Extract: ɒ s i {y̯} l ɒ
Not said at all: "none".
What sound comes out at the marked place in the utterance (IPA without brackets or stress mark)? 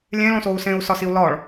u̯